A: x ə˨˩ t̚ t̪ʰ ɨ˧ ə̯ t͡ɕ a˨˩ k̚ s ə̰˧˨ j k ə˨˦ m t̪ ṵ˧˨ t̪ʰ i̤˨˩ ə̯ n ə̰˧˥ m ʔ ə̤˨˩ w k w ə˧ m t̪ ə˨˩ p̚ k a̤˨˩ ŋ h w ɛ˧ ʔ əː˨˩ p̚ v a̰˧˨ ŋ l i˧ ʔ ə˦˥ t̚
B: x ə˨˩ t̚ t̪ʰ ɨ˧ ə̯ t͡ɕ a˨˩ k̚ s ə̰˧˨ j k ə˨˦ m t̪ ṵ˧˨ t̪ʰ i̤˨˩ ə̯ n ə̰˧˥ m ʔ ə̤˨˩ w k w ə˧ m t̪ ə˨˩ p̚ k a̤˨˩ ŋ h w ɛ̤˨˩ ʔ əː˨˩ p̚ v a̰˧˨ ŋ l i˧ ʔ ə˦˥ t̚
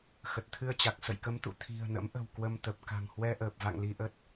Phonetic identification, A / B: A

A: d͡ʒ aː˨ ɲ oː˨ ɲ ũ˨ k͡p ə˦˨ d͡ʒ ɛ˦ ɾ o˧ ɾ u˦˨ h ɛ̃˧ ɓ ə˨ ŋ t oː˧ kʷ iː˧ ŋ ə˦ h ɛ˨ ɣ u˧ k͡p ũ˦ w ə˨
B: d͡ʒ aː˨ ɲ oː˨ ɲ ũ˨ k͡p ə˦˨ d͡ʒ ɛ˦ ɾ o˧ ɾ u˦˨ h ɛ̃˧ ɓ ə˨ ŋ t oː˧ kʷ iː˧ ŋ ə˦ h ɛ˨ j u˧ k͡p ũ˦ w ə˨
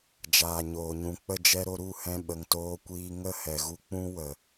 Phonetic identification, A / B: A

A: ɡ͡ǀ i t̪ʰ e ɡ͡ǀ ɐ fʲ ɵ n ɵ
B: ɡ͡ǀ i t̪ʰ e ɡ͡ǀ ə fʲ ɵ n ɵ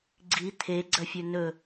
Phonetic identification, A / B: A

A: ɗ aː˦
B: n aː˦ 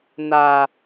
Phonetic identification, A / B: B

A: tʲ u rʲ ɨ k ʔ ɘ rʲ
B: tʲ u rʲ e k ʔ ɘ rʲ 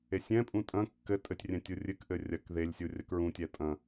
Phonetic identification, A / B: A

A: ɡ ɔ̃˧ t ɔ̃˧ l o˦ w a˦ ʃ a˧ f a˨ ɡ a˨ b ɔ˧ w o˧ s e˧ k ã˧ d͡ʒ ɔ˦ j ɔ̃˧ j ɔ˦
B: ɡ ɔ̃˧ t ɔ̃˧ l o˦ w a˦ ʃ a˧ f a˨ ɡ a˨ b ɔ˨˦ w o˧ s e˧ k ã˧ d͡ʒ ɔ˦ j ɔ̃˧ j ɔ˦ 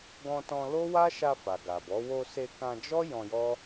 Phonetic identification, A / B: B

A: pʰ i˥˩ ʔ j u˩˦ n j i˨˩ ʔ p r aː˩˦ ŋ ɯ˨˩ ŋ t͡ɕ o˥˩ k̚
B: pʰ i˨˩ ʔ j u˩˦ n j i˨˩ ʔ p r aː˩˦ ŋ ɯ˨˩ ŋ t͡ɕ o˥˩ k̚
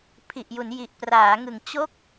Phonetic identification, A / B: B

